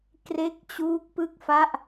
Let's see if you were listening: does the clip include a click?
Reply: no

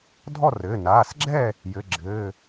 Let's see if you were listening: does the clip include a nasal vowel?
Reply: no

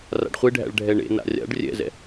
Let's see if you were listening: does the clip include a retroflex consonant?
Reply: yes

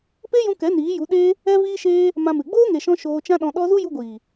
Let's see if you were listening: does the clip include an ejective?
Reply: no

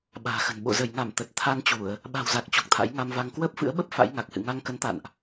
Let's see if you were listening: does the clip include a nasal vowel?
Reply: no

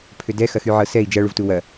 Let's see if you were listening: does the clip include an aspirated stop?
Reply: yes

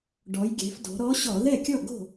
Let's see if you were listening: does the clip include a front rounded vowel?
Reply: no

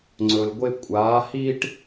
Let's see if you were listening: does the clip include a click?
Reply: yes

